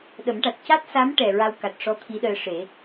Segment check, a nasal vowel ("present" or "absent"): absent